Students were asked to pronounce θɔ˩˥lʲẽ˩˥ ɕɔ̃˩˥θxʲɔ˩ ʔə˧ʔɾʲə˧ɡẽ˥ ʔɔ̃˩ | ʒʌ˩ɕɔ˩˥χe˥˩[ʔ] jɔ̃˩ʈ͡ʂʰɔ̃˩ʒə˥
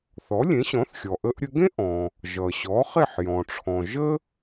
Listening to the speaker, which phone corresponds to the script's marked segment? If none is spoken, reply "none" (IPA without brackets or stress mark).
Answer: ħ